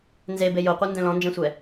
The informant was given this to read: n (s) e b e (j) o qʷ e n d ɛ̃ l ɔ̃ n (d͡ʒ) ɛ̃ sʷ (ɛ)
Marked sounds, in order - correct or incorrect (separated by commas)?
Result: incorrect, correct, correct, correct